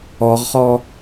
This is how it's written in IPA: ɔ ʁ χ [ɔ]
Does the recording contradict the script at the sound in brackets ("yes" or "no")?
no